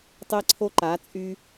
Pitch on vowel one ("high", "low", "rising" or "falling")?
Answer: high